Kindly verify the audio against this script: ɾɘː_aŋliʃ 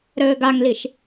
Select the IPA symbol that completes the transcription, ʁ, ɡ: ɡ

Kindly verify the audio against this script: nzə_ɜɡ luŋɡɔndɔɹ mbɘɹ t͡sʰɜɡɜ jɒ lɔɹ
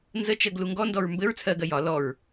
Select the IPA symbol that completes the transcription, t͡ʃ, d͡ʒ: t͡ʃ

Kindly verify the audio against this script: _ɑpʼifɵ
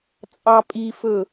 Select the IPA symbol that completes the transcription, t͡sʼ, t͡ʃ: t͡sʼ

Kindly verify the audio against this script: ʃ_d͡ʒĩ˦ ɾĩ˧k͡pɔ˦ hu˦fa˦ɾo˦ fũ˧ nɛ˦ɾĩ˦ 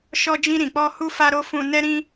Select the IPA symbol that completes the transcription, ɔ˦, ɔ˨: ɔ˦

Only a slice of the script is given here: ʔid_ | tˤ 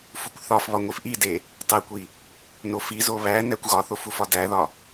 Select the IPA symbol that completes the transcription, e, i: e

